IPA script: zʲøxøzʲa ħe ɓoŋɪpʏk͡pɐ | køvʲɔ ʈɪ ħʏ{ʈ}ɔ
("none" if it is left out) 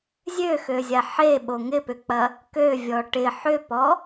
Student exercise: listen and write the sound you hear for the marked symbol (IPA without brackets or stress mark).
p